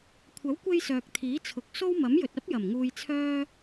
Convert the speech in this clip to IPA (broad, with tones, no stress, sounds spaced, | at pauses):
kʷʰ ɐ˨˥ w kʷ e˧ j s œː˨ k̚ t̪ʰ iː˨˥ t͡sʰ ʊ˨ k̚ s o˥ w m ɐ˨˥ m j ɵ˨ t̚ ɐ˥ p̚ j ɐ˨˩ m ŋ uː˧ j t͡sʰ œː˥